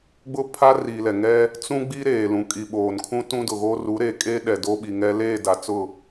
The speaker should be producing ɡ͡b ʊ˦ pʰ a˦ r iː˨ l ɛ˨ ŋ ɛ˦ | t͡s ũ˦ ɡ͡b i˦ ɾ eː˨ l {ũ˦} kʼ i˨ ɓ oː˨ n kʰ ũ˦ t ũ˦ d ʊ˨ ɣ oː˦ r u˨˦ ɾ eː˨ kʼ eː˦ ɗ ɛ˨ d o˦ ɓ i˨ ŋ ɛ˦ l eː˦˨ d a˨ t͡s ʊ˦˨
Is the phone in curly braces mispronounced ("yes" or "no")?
yes